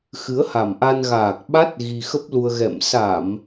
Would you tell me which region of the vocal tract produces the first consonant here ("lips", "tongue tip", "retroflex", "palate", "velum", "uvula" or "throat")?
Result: velum